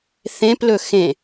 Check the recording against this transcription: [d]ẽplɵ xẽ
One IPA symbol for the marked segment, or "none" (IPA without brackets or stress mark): θ